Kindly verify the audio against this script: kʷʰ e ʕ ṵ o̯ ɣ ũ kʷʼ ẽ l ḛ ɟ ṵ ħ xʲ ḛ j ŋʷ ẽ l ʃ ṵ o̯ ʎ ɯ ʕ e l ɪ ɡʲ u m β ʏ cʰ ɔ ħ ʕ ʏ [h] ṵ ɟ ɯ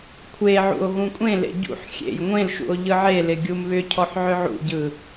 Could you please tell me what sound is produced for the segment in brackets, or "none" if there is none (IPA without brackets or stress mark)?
ʕ